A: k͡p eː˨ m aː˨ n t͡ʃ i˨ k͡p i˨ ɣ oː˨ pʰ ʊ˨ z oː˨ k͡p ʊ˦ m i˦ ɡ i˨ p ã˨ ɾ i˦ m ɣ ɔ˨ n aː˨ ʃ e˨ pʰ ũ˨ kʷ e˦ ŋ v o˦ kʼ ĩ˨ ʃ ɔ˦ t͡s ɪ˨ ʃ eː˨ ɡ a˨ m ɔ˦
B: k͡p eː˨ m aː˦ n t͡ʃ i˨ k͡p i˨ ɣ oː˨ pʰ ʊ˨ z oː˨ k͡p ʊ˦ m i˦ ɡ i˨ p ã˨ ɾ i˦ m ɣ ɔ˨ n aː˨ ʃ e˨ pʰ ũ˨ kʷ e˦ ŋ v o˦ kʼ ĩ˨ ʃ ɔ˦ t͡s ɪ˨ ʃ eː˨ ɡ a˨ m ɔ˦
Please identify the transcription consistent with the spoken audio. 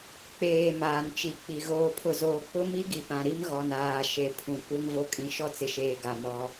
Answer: A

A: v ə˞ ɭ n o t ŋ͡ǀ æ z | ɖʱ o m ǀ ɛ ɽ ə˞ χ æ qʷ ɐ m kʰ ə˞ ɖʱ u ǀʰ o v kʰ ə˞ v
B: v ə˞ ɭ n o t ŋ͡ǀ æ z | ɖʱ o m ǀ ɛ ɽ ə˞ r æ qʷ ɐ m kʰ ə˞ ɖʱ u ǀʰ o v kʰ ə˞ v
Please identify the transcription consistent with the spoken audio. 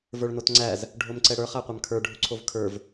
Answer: A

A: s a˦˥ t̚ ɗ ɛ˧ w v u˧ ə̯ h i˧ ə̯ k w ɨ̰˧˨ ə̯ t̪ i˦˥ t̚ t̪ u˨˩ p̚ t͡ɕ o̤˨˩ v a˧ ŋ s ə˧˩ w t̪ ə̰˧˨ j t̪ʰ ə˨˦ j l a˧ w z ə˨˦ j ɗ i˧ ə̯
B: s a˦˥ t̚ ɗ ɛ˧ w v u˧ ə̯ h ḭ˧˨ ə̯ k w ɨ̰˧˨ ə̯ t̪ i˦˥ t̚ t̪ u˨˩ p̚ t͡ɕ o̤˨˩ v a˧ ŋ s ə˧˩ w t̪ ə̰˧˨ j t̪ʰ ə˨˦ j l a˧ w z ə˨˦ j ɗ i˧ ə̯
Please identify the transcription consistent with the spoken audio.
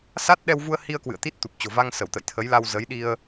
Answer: A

